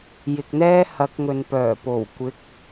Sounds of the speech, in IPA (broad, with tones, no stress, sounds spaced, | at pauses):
j ɪ˨ k̚ n̪ ɛː˥ h ɐ˨˥ k̚ ŋ ɵ˨ n p œː˨˩ p o˨˩ w kʷ ɪ˨˥ k̚